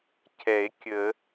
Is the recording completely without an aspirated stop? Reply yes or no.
no